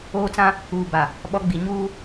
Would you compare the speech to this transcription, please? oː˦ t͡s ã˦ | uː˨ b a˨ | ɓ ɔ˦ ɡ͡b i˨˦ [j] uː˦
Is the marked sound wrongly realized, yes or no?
yes